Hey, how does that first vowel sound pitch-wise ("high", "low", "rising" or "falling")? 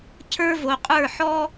high